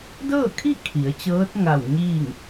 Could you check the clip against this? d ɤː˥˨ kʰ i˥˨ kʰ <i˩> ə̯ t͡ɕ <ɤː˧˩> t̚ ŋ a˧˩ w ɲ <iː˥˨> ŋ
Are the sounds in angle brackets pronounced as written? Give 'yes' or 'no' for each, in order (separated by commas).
no, no, yes